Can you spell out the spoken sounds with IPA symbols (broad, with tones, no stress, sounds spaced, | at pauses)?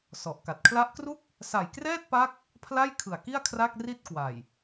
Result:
s ɔ˨˩ ʔ k a˨˩ t̚ kʰ l a˦˥ ʔ k r u˥˩ k̚ | s a˨˩ j k r ɛː˥˩ t̚ p a˦˥ k̚ | pʰ l a˥˩ j kʰ ɯ˨˩ a̯ k i˥˩ a̯ kʰ r a˥˩ k̚ r i˥˩ t̚ k w a˨˩ j